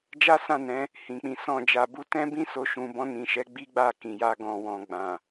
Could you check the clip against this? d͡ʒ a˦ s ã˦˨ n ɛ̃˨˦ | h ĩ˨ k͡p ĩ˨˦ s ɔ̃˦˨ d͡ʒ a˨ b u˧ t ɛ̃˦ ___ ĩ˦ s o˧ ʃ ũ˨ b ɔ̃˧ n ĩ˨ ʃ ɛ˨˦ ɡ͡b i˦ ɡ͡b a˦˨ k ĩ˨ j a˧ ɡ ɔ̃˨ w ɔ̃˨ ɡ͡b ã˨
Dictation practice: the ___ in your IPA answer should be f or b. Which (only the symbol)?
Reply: b